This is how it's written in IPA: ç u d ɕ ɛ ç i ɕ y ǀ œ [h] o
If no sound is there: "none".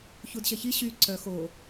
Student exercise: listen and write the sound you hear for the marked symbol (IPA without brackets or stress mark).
x